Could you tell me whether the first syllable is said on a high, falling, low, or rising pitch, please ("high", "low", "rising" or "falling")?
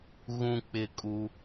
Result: high